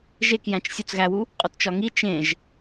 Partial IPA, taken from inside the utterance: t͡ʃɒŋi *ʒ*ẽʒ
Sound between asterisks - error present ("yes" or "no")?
yes